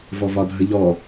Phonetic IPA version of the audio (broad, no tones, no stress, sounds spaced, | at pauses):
v ɔ v ɒ dʱ ə ʎ ɔ